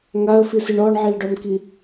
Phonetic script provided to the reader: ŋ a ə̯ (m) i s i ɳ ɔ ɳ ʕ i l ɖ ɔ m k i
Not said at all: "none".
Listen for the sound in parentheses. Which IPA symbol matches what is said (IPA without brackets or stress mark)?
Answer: f